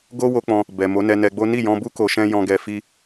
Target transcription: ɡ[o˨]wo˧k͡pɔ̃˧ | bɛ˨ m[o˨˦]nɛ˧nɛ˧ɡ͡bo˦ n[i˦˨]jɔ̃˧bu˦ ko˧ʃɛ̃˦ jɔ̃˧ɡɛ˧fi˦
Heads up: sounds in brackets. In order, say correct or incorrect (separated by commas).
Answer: incorrect, correct, correct